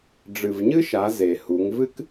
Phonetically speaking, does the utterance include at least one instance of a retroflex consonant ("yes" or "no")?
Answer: yes